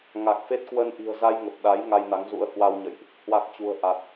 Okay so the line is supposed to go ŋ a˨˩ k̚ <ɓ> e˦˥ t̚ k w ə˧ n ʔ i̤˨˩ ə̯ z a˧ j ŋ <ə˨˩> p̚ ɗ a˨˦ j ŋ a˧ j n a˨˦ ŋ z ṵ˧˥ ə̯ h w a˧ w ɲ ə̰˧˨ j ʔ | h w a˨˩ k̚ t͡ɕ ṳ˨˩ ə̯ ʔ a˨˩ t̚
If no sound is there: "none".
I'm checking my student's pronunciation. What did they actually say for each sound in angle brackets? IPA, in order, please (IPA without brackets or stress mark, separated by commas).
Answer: f, ə˨˩